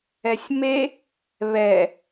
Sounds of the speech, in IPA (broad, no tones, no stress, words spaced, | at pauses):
ɛsʲme | βɛ